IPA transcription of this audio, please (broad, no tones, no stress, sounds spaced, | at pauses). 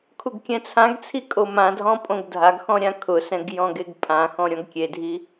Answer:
kʰ u ɡ kʲ ɛ̃ t͡sʰ ã ɡ t͡sʰ i kʼ o m ã dʱ ɔ̃ pʼ õ ɡ dʱ a ɡ x ɔ̃ ɾʲ ã kʰ ʊ s ɛ̃ ɡ j ɔ̃ ɡ e ɡ pʼ ã x ɔ̃ ɾʲ ɔ̃ ɡ kʲ e dʱ i